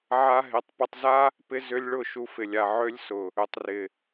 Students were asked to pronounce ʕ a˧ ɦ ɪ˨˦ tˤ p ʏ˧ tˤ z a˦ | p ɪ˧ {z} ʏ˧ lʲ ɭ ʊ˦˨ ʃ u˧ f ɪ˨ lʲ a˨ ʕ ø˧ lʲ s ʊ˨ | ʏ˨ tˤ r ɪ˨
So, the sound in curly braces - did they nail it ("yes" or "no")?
yes